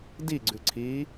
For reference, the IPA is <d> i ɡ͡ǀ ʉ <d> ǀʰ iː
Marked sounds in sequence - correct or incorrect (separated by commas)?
correct, incorrect